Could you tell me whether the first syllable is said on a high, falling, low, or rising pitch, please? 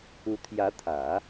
rising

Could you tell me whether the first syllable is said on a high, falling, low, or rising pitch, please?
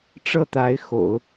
falling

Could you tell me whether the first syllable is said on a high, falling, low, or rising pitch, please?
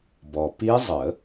low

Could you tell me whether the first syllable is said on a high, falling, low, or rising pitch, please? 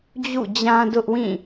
falling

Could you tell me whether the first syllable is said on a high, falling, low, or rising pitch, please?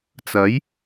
rising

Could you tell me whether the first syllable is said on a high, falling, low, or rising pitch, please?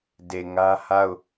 low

